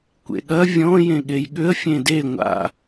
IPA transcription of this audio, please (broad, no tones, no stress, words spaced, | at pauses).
kʷḛɠɐ vʲɔ̃ jẽɠejɠʏə̯ fʲẽde ŋʷa̰